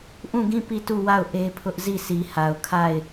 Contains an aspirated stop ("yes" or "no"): yes